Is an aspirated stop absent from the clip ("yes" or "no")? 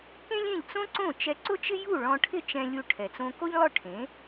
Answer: no